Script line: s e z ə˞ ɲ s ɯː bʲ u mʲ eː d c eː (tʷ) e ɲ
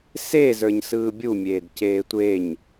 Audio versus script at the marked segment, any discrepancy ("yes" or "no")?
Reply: no